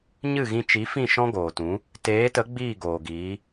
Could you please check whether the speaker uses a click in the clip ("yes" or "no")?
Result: no